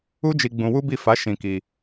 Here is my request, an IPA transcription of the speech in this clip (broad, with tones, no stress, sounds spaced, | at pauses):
u˦ d͡ʒ i˧ ɡ͡b ũ˧ w u˦ b i˦˨ f a˨˦ ʃ ĩ˧ k i˧